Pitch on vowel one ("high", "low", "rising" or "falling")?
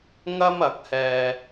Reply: high